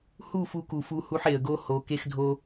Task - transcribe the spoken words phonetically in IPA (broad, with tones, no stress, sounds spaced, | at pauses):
h u˦˨ f u˧ k u˨ f u˧ h u˧ ħ e˨ ə̯ ɡ o˦ h o˨˦ k e˧ x dʱ o˧